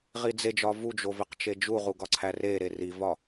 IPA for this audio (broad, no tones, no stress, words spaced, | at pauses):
ʁid͡zed͡ʒɒ vud͡ʒo veqt͡ʃed͡ʒuʁu ɡɒǀʰæreɾe rivɒ